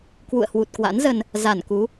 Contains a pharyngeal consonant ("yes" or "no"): no